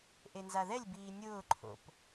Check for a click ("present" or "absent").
present